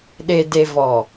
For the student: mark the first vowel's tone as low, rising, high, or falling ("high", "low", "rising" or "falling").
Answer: low